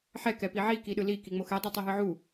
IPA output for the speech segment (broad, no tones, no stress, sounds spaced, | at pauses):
ħ ɛ k ɛ p i ʕ i k i ɗ ɯ l i k i ŋ͡m o x ɛ dˤ i tˤ o ɦ ɯ ʕ u